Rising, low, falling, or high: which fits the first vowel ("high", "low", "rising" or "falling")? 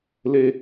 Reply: high